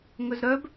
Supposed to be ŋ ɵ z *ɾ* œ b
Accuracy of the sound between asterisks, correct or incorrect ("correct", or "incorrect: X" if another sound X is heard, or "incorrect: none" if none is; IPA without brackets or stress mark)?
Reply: correct